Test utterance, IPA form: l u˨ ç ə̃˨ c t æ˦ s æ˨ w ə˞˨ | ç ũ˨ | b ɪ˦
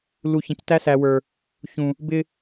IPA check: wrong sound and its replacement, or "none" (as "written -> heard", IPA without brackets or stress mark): none